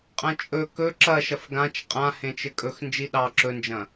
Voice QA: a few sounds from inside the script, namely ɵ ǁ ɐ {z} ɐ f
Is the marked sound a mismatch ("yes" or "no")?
yes